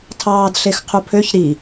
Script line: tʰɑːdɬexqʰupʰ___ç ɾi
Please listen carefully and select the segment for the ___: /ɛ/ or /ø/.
ø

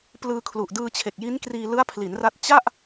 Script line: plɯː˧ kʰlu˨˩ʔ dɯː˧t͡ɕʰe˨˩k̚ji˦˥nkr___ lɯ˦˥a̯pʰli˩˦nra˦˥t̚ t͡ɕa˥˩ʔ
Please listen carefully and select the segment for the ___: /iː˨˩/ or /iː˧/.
iː˧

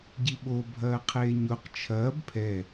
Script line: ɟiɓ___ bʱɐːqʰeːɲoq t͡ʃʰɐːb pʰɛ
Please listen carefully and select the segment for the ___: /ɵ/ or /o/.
o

